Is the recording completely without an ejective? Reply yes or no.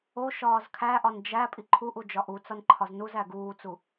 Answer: no